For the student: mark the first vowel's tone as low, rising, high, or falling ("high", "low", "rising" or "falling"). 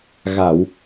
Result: low